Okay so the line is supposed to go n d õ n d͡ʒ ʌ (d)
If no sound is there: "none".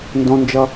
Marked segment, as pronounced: none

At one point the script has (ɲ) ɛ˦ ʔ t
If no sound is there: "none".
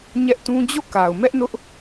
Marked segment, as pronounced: ɲ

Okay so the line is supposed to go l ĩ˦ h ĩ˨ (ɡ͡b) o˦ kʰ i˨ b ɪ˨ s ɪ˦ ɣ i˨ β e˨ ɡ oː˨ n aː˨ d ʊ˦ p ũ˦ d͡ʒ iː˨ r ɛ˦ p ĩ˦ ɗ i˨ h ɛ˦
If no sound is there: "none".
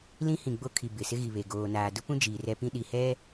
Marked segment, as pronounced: ɡ͡b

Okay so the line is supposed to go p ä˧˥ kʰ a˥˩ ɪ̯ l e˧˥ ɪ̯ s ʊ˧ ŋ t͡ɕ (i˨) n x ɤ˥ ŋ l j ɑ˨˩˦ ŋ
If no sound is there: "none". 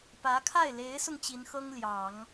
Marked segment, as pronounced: i˧˥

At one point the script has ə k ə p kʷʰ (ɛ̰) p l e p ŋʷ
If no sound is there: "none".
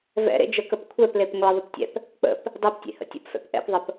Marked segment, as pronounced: ɛ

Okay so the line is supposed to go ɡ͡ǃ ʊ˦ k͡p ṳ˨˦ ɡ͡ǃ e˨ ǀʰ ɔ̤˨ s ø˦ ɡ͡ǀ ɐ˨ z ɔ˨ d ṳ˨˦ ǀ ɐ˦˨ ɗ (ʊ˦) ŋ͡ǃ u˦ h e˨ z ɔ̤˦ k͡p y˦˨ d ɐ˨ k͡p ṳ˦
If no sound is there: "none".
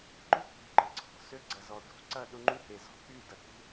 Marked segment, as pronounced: ʊ˦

